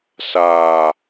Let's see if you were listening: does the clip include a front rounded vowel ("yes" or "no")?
no